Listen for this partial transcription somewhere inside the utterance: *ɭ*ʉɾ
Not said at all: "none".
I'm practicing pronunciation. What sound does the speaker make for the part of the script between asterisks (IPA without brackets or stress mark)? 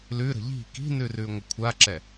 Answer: l